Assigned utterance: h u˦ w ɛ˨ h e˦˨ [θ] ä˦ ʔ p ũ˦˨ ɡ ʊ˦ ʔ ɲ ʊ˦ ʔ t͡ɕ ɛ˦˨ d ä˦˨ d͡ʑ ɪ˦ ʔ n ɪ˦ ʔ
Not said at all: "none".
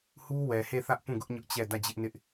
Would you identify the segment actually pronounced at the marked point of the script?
θ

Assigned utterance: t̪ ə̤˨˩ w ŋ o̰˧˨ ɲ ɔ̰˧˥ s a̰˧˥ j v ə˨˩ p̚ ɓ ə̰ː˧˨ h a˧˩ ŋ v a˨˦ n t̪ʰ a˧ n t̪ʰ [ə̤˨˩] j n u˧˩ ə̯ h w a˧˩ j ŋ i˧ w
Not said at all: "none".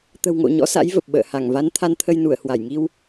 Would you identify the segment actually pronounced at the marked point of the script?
ə˧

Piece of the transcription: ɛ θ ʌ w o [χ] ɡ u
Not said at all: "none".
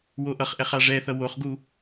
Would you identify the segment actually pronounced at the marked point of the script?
χ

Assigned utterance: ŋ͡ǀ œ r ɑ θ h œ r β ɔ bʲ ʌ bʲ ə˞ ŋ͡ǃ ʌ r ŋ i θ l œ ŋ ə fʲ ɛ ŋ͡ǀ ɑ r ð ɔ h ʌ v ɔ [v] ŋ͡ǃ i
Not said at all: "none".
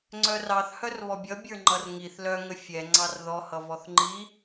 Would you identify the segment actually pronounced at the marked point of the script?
θ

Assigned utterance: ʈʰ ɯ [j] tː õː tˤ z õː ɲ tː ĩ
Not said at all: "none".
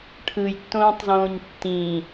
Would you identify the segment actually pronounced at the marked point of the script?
j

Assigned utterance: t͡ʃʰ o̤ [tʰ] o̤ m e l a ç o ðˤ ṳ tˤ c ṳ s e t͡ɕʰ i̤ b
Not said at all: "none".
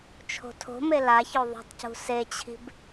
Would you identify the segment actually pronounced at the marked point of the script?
tʰ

